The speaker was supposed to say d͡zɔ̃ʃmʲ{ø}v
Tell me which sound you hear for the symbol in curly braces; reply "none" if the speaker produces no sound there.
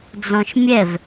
ɛ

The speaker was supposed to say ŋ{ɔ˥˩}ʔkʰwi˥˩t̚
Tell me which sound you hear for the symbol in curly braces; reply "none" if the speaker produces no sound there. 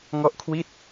ɔ˥˩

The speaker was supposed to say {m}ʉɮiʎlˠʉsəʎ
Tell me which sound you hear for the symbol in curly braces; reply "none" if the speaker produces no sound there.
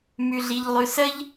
m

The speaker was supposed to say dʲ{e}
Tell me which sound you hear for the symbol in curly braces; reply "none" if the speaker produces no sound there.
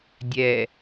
ɛ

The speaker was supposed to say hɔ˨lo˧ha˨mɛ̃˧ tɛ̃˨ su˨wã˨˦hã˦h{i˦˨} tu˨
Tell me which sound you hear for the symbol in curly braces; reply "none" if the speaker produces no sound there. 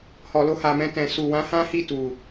i˦˨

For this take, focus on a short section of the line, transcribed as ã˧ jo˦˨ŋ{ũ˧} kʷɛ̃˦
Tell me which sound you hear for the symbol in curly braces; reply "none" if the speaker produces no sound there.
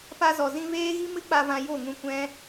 ũ˧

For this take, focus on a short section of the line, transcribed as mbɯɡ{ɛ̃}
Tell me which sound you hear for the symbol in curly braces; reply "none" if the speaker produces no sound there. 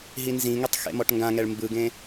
ẽ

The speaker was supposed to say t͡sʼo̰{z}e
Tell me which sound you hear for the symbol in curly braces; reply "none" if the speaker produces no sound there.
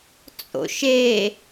ʃ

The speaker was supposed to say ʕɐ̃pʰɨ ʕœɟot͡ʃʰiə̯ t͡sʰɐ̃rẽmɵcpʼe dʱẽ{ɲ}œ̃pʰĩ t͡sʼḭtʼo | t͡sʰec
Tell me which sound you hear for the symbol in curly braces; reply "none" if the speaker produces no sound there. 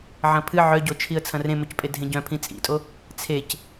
ɟ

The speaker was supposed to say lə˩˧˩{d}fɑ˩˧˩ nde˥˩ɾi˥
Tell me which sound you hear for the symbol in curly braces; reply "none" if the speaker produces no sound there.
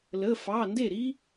none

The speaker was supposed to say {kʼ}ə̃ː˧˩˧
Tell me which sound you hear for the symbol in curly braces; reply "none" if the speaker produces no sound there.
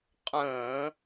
qʼ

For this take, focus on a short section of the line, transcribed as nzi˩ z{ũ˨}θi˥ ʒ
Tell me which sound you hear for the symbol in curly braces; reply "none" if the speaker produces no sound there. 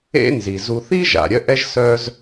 u˨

